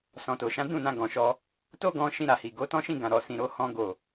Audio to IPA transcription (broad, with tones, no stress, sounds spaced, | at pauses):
s ɔ̃˨ t o˨ ʃ ã˨˦ d ũ˦˨ n ã˧ ɡ ɔ̃˨ ʃ ɔ˧ | t o˦ ɡ ɔ̃˧ ʃ ĩ˧ ɾ a˨ h i˨ ɡ o˨˦ t ɔ̃˦ ʃ ĩ˦˨ ɡ ã˨ ɾ ɔ˨ s ĩ˨ ɾ o˧ h ɔ̃˧ ɡ o˨